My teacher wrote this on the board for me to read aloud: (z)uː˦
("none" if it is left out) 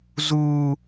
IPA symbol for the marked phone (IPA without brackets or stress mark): z